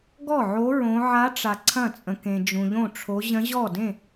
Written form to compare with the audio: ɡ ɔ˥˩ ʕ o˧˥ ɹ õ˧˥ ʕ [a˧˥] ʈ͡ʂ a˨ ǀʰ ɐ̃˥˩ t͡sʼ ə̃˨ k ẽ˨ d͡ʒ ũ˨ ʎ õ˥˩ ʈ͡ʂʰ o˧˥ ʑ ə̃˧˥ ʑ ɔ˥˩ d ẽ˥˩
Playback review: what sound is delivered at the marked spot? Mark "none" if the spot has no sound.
a˧˥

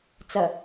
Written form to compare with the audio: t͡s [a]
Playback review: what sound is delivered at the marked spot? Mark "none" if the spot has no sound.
ɐ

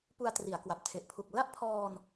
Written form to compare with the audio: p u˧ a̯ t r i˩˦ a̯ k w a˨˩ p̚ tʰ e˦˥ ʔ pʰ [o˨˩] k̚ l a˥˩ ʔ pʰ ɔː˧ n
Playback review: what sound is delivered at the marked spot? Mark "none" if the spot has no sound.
u˨˩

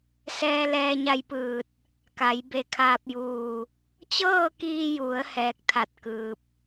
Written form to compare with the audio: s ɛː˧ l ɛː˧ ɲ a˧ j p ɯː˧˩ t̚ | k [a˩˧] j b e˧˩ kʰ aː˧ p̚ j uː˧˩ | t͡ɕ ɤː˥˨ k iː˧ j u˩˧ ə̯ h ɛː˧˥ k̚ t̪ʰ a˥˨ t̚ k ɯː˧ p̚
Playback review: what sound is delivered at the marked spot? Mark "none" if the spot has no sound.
a˩˧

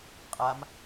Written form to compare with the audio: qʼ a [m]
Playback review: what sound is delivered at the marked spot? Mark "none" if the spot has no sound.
m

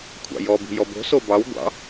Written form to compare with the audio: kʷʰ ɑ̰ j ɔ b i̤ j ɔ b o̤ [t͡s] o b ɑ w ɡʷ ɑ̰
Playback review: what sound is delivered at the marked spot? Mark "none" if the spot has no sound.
s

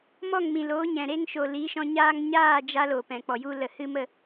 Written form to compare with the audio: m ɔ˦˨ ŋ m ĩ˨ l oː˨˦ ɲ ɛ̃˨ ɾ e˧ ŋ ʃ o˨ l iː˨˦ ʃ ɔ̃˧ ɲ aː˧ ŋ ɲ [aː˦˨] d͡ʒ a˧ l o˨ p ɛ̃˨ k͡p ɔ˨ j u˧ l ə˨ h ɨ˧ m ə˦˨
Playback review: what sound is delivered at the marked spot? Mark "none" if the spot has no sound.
aː˦˨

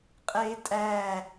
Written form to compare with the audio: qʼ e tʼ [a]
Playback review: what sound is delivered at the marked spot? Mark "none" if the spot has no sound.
æ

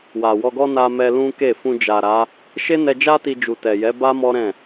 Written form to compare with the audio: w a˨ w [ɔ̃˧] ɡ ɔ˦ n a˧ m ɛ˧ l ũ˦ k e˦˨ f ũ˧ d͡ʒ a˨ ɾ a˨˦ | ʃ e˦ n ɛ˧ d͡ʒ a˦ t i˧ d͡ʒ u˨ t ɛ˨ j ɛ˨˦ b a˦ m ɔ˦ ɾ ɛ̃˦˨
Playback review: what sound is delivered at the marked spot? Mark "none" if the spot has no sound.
ɔ˧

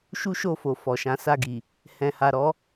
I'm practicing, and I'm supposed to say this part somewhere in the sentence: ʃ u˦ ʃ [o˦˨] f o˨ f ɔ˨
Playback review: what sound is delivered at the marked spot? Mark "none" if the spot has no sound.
o˦˨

